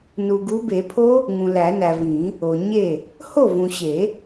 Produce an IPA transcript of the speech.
n u˨ ɡ u˨˦ b e˨˩˦ pʰ o˦˥ | ŋ ũ˨ l æ˨˩˦ n æ˨ v ĩ˨˩˦ | o˨ ɲ e˥˩ | h o˥˩ v ũ˨ ɕ e˨˩˦

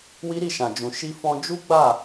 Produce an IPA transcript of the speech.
w i˦ ɾ i˦˨ ʃ ã˨ d͡ʒ ũ˨ ʃ i˧ f ɔ̃˧ d͡ʒ u˦ ɡ͡b a˦˨

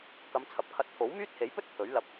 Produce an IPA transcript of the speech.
k ɐ˨˧ m t͡sʰ ɐ˨˥ p̚ kʰ ɐ˧ t̚ t̪ʰ o˨˥ w m yː˥ t̚ h e˨˥ j p ɵ˥ t̚ t̪ʰ ɵ˨˥ ɥ l ɐ˧ p̚

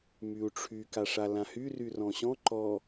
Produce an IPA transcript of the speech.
m y u̯ ʈ͡ʂʰ y k a ʂ a l ã h y r y r ɔ̃ ɕ ɔ̃ ǃ ɔ

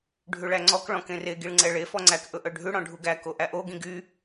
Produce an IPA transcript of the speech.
ɖʱ ʉ ɭ æ ŋ͡ǀ ɔ k ɭ ɔ̃ k ẽ r e ɡ i ɭ ŋ͡ǀ ɛ ɭ e f ɔ ŋ͡ǀ æ k ʔ ɵ ʔ œ ɖʱ ʉ ɽ ɔ̃ ɖʱ u ɡ æ k o ʔ æ ʔ o ɡ ĩ ɡ y

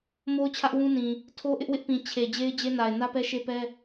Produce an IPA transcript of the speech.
m o˦ ʊ̯ t͡ɕʰ ä˦ ʔ w ũ˦ n ĩ˨ | tʰ o˦ ʔ ɪ˦ ʔ w ɪ˦ ʔ p ĩ˨ t͡ɕʰ e˨ d͡ʑ e˦ ɪ̯ d͡ʑ e˦ n a˨ ɪ̯ n ä˦ p ɛ˦ ʃ e˦ p ɛ˦

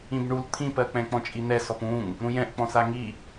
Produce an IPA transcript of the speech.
ĩ b ɳ u l t̪ʰ ĩ p ɜ k͡p ɛ̃ k͡p ɔ̃ t͡ʃʼ i n̪ ɛ s ɔ p ũ ŋ | ɾ ũ j ɛ̃ ʔ k͡p ɔ̃ s a ŋ i

